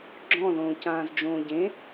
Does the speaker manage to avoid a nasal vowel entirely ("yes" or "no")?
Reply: no